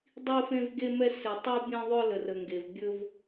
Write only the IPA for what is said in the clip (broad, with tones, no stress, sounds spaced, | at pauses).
dˤ i˦ f ẽ˦ v ɡ e˦ m ɛ˦ s ɪ˨ tˤ u˦ bʲ ẽ˦ ðˤ ɵ˦ l ə˨ r ə˨ ŋ ɡ e˨ v bʲ ɵ˦ v